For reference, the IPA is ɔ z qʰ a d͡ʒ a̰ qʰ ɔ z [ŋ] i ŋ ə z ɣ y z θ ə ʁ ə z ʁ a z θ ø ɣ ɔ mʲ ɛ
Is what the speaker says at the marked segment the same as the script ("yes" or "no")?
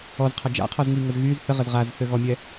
yes